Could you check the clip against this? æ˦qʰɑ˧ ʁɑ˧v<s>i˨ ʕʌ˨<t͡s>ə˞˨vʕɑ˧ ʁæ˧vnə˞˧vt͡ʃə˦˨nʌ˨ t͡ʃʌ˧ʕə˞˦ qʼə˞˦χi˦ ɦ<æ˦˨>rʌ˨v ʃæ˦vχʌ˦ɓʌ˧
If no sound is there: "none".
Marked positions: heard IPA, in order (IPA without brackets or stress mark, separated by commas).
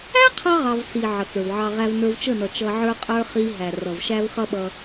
s, t͡s, æ˨